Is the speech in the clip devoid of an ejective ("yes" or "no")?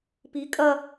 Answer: no